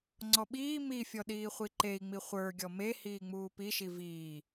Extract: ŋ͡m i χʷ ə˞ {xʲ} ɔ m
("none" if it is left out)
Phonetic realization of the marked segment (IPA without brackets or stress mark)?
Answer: ɡʲ